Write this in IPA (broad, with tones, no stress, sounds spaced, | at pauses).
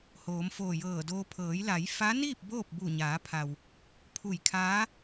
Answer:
h oː˩˧ m f oː˧˩ j ɤː˧˩ d oː˧ pʰ ɤː˩˧ j l a˩˧ j f a˧˥ n iː˥˨ p̚ b oː˥˨ p̚ b u˧˩ ɲ aː˩˧ pʰ a˩ w | pʰ u˧˩ j kʰ aː˧˥